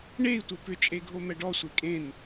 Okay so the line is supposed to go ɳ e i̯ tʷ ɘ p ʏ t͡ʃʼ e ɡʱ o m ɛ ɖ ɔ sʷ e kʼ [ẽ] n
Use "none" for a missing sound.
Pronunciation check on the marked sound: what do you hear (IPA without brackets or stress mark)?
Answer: ẽ